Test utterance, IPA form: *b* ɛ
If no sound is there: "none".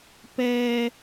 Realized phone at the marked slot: p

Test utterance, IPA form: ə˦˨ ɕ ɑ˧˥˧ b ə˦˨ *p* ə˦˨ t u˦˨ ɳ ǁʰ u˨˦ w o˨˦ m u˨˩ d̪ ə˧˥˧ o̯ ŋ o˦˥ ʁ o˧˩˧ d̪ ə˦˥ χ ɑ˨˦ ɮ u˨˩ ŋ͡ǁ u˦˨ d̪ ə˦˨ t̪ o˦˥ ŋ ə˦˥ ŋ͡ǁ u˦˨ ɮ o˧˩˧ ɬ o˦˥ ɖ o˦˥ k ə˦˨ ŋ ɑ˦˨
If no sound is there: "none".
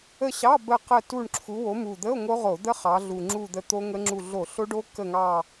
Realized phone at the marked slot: q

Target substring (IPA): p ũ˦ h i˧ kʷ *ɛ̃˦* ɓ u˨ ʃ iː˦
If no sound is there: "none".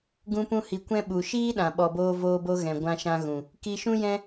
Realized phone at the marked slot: ɛ̃˦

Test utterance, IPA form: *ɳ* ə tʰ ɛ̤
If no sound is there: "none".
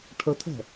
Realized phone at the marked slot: ʈʰ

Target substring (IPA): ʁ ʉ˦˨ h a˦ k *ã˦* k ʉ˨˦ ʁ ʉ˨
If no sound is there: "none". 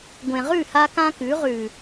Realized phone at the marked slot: ã˦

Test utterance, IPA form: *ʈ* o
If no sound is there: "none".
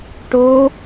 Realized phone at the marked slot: ʈ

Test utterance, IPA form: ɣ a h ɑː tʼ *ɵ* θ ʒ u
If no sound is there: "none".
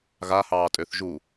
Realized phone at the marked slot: ø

